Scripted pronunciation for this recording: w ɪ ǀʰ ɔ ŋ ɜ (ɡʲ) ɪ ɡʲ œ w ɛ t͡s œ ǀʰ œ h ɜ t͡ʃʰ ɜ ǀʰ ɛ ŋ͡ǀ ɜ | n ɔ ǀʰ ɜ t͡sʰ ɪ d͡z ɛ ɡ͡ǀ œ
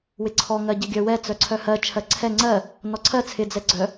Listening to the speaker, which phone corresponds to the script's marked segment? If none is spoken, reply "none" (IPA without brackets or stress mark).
ɟ